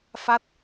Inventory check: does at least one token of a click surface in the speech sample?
no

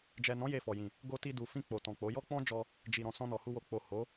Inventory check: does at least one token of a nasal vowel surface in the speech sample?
yes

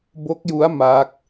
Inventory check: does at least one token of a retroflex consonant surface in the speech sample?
no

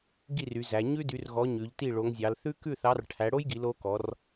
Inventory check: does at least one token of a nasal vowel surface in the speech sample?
no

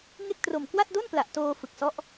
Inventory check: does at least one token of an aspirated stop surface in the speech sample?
no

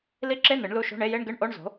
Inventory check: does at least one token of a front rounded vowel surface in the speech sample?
no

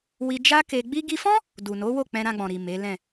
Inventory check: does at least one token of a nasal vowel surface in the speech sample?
yes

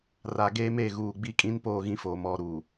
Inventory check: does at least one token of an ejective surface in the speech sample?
yes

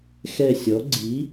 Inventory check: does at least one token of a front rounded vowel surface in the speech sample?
no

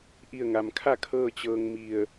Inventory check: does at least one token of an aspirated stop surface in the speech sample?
yes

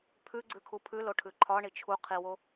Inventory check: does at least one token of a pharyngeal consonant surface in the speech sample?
no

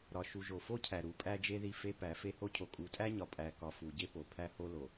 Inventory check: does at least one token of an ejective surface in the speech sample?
yes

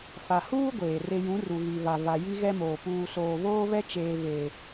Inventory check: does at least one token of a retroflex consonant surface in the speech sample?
no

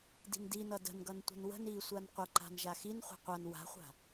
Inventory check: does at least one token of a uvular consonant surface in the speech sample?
yes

